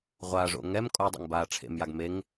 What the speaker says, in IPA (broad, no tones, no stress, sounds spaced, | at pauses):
ʁʷ a ʐ o̰ ŋ ɛ m kʼ o dˤ ɛ̰ ŋ b aː ʈ͡ʂʰ ḛ m j a ɡ m e ŋ